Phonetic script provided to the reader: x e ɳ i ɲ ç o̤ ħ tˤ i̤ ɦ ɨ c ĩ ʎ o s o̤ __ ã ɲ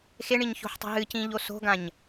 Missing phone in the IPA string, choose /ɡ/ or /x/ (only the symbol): ɡ